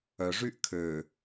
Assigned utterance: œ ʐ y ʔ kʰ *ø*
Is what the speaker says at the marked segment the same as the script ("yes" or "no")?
yes